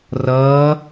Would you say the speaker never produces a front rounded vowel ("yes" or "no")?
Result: yes